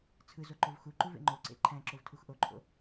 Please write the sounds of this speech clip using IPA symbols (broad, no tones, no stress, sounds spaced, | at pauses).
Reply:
t͡sʰ ɯ z o ǃ o v x u ǃ u v ḛ ŋ͡ǃ o ǀ ḛ ǃʰ æ̃ ǁ o v tʰ u x ʔ o ǃʰ o̰